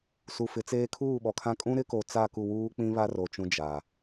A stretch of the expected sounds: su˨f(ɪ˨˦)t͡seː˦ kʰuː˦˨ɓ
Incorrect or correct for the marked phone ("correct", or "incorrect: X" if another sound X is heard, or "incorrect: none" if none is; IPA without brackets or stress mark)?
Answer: correct